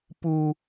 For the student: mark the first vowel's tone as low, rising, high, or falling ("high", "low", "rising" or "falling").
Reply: high